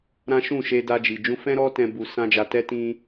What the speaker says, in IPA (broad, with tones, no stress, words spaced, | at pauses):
ɾã˦ ʃũ˦˨ʃe˧ da˧d͡ʒi˨ d͡ʒũ˧fɛ̃˦ ɾɔ˦tɛ̃˧ bu˧sã˦d͡ʒa˧ tɛ˧ tĩ˧